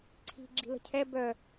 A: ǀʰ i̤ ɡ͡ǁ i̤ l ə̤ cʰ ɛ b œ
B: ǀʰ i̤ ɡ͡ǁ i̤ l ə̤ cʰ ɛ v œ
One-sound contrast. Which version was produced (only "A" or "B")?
A